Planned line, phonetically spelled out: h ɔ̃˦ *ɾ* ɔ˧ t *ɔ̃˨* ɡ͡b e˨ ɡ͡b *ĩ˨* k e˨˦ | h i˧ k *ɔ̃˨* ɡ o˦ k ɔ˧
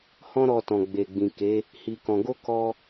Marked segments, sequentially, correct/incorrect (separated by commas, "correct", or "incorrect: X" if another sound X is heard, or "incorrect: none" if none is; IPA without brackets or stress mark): correct, correct, correct, incorrect: ɔ̃˧